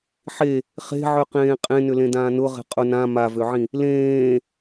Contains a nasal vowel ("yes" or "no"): yes